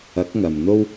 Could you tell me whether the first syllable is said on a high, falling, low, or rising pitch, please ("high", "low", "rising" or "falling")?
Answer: rising